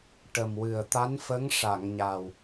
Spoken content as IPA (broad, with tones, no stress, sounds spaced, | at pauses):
ʈ ə˨˩ m w ɨ˨˩ ə̯ t̪ a˧˥ n f ə˧˥ ŋ ʂ a˨˩˨ ŋ ɲ a˨˩ w